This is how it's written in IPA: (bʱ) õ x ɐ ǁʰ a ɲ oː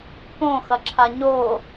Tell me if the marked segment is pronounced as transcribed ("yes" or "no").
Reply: no